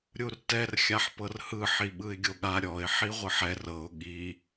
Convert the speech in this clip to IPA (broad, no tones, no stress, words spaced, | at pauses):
ɾʲurtɛr xʲaħpɤrhɯ ħiɓɯɪ̯ɡʲoɠa ɾʲɔɪ̯ ħiʁʷɯħɛr ɤʊ̯ ɠi